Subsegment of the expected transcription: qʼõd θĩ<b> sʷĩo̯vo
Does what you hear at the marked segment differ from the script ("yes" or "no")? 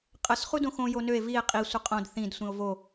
yes